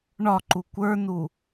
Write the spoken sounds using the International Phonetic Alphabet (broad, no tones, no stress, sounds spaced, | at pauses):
ɳ ɒ ǃ u kʷ ə˞ n u